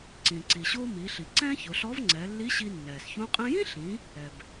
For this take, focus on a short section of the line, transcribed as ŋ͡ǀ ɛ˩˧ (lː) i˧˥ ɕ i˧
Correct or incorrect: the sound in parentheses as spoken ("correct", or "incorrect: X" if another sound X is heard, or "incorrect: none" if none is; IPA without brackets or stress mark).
correct